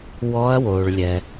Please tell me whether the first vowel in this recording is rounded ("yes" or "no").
yes